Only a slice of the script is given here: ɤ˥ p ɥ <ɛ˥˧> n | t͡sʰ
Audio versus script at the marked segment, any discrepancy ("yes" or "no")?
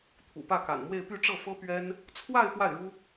yes